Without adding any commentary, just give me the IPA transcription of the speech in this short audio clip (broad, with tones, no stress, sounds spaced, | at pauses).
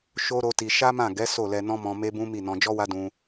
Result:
ʃ o˦ ɾ o˦ t i˧ ʃ a˦ m ã˦˨ ɡ ɛ˨˦ s o˦˨ l ɛ˧ n ɔ̃˦ m ɔ̃˧ m e˦ b ũ˦ m i˦˨ n ɔ̃˧ d͡ʒ ɔ˦ w a˦ d ũ˧